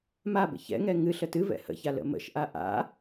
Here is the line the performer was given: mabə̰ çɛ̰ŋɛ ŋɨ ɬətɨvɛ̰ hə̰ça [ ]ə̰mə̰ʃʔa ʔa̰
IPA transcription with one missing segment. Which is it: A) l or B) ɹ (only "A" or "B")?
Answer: A